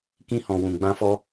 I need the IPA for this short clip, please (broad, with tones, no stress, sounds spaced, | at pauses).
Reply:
k ĩ˧ h ɔ̃˨ w ũ˨ ɡ͡b ã˧ f ɔ˧